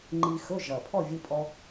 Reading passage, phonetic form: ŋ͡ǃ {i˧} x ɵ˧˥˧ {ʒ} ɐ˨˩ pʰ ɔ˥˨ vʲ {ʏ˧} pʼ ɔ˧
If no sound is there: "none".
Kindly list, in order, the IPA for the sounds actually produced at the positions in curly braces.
i˧, ʒ, ɨ˧

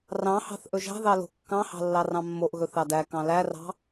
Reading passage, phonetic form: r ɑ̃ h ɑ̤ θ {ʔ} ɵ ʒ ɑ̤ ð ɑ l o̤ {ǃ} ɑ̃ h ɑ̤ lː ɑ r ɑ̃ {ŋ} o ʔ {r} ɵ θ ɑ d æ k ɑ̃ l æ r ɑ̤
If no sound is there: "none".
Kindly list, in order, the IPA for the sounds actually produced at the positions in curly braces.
ʔ, kː, mː, ɣ

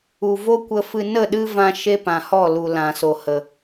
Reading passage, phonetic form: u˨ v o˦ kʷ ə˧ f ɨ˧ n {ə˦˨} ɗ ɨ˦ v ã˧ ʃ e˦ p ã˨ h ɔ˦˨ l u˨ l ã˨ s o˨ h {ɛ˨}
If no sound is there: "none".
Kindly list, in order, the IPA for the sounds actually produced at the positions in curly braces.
ə˦˨, ə˨

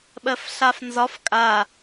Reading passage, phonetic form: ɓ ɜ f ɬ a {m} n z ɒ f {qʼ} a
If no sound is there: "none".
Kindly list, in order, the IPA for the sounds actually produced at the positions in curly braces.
f, kʼ

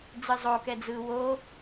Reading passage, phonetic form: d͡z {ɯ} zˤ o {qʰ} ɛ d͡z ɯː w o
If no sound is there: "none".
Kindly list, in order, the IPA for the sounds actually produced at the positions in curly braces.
ɯ, k

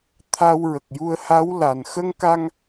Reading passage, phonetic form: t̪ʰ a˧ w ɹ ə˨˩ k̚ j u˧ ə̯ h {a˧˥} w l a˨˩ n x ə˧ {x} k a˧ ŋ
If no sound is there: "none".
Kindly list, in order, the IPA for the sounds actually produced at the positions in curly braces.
a˧˥, ŋ

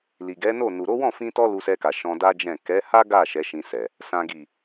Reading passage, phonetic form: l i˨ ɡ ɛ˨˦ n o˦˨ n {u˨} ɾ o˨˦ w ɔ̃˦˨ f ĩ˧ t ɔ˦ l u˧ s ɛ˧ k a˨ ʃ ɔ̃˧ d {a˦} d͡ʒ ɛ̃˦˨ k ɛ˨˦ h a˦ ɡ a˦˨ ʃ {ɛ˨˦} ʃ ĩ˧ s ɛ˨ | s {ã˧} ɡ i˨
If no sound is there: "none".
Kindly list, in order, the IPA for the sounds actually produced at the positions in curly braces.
u˨, a˦, ɛ˨˦, ã˨

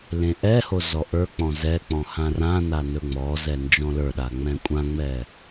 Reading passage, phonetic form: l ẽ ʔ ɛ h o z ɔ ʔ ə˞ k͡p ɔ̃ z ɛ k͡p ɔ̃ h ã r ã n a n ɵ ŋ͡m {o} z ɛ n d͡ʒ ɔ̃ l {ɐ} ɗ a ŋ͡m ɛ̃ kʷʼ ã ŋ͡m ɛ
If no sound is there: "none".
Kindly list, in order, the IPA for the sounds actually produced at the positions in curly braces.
ɔ, ə˞

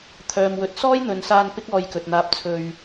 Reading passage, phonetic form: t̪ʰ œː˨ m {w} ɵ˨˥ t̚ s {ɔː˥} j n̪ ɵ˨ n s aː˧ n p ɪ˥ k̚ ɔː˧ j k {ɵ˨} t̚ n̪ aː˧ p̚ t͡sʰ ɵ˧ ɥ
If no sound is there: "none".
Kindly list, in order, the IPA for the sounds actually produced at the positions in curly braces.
w, ɔː˥, ɵ˨

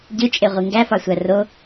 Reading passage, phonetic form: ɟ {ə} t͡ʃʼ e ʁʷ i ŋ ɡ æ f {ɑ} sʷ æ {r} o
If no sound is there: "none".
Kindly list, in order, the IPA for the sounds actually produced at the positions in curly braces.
ɯ, ɑ, r

